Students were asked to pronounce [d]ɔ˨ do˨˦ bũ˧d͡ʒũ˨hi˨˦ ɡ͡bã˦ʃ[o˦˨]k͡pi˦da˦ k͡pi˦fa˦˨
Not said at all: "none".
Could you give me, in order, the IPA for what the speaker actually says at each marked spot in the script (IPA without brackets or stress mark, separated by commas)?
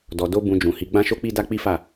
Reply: d, o˦